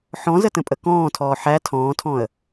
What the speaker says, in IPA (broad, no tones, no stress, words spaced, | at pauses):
ħɔ̃zətə̃pʼə kɔ̃ːtʰɔː ħæ tʰɔ̃ːtʰɔ̃ə̯